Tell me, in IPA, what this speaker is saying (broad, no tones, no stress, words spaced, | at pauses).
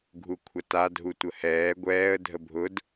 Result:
ɡʱukʷʰata dʱutʷəhɛː ɡʷɛːə̯ dʱəbʱʊd